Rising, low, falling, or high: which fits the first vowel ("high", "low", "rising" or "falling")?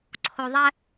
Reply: high